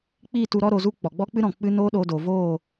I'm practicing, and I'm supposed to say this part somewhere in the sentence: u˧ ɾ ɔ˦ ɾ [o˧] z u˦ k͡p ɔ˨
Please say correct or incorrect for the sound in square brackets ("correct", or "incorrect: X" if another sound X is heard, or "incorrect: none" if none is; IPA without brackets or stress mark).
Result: correct